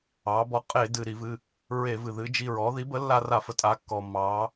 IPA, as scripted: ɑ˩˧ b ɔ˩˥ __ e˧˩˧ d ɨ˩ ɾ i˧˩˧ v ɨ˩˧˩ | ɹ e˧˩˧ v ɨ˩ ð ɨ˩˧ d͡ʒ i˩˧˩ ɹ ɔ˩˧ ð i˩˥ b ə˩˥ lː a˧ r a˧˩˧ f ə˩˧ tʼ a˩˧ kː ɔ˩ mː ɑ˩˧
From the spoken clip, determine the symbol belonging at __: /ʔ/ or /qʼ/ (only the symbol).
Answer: qʼ